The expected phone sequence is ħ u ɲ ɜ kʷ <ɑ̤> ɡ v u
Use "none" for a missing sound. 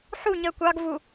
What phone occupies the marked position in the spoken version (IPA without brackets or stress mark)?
ɑ